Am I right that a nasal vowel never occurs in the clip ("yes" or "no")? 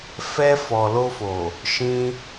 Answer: no